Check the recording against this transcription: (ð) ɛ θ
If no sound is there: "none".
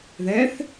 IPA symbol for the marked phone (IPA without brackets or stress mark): ð